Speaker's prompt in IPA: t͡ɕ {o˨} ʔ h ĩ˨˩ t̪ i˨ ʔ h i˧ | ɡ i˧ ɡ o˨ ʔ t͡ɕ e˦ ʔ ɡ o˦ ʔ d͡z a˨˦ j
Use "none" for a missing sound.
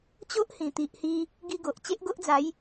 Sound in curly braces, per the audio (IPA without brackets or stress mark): o˦